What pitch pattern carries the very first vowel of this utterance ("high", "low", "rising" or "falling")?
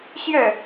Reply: falling